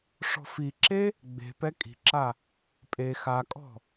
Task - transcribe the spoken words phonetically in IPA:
ʂɔ̤fiǁe | ɡ͡be̤pɛ kʼi̤ǁa | pʼe xakʼɔ̤

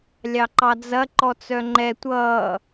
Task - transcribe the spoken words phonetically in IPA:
lʲɑǃɑd͡zɐ ǃɔt͡sœŋ͡ǃɛ tʷʌː

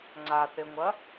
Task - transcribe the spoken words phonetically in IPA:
ŋ͡ǀaθeŋʷɐ

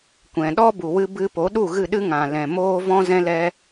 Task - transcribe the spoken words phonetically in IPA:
kʷɛ̃˨ɗɔ˦ bu˨wɨ˧ bɨ˧po˨˦ ɗu˦˨ɣɨ˦˨ɗɨ˦ ŋã˨lɛ̃˨ moː˦ vɔ̃˦zɛ̃˦lɛ˦

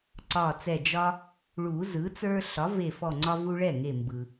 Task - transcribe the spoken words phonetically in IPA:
ǀɒ˧˩t͡sɛ˧˩ d͡ʒɒ˦ | ɭu˨˩˦ zɯ˩˥t͡sə˞˦ ɬɒ˩˥ve˧˩fɔ˧˩ ŋ͡ǀɒ˦vu˦ ɭɛ˥˩ ŋe˧˩mbɯ˩

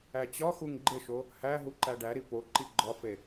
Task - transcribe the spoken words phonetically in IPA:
æt͡ɕɒxuŋ ɡ͡ǃeʃo | hæ ɦuǃæɖæɾi po ǃiɡ͡ǃɒfe

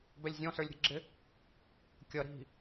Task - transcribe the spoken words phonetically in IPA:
bɛlʲzʲɔ̃sə˞lʲ ɾʲə̤ɡ͡ǁɪ | kʲʌɾi̤

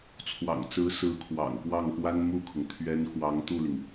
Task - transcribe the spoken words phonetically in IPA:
t͡sʰwɑ̰˨˩ŋt͡sɹ̩˧˥ sɹ̩˧˥kʰwɑ̰˨˩ŋ kwɑ˥˩ŋpwa˥n mu˥˩kʰʊ˩ŋ t̪ʰɥɛ˧˥n xwɑ˧˥ŋt̪u˥˩li˩ŋ

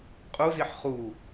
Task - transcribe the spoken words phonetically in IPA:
qʼuziħ χu

